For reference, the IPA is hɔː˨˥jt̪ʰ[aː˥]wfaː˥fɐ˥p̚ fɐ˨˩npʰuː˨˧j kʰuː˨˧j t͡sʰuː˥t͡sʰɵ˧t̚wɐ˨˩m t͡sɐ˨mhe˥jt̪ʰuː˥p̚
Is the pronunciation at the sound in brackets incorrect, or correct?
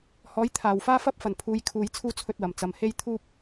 incorrect